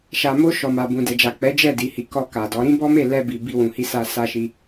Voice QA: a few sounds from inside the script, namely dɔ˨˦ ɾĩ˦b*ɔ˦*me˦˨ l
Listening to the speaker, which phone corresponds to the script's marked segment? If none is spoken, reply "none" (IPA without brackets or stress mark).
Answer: ɔ˦